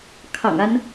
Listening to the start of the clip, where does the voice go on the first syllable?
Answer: low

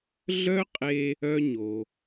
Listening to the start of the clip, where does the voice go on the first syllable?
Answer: high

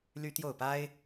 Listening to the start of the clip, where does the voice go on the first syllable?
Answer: high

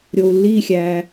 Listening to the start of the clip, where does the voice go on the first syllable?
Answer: low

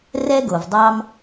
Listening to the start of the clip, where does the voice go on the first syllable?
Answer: high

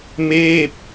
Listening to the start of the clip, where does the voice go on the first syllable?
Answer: falling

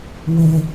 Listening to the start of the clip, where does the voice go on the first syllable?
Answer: low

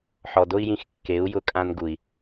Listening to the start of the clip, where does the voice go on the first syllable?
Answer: low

